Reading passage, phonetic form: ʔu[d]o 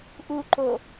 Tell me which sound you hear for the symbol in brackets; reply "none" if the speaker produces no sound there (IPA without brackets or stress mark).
ǃ